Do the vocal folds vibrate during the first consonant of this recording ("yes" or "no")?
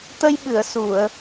no